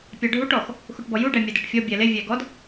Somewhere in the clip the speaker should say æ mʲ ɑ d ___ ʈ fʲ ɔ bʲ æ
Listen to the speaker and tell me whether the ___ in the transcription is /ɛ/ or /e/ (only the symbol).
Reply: ɛ